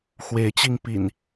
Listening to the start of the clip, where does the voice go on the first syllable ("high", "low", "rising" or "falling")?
rising